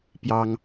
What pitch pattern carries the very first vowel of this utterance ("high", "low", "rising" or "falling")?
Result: high